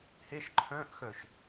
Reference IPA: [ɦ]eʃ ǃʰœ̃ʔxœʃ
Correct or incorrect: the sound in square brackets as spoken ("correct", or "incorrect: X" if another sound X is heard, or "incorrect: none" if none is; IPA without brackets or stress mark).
incorrect: h